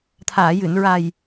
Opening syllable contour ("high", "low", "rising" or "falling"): low